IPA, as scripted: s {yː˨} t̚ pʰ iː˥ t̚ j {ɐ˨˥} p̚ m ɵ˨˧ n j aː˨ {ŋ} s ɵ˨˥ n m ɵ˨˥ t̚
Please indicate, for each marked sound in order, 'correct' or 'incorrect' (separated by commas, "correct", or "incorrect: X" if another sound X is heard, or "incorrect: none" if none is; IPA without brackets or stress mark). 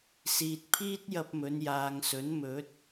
incorrect: iː˨, incorrect: ɐ˧, correct